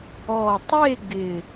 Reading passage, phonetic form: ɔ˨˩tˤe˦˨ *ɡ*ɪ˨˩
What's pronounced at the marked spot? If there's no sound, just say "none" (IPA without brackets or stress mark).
ɡ